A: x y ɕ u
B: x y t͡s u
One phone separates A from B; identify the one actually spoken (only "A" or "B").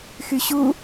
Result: A